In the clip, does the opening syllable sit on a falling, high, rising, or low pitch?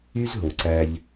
high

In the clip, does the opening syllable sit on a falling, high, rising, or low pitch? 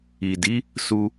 low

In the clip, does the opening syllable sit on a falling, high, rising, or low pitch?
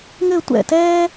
falling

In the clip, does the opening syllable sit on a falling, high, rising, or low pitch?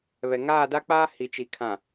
low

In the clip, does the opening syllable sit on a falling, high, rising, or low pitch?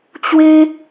high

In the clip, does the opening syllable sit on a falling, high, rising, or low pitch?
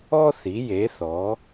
high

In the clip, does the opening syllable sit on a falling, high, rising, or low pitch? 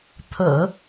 low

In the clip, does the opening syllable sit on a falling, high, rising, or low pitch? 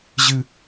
high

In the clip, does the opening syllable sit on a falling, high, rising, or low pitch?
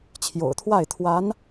low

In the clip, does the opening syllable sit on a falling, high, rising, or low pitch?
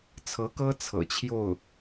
rising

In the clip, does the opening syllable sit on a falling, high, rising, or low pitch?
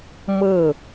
falling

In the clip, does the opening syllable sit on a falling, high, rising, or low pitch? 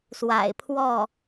low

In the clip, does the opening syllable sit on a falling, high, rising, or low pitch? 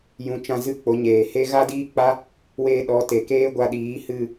rising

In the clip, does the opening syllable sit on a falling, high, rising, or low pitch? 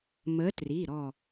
rising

